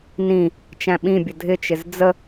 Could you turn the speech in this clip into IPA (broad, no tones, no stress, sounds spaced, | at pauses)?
n ĩ | t͡ʃ æ̃ ɓ ĩ bʲ ə dʱ ɪ t͡ʃ ɪ z d͡z ə